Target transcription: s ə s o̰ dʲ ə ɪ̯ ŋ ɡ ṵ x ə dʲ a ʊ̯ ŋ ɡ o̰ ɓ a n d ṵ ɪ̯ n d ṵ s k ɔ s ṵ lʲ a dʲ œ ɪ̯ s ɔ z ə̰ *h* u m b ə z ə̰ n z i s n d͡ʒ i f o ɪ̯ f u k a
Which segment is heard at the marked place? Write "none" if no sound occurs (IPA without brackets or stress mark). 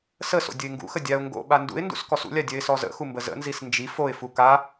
x